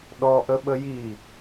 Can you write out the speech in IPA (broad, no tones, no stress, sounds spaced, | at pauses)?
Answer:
ɗ ɔ ʔ ə ɓ ə j i